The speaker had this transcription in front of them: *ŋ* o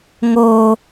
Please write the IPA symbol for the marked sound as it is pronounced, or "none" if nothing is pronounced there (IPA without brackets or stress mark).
ŋ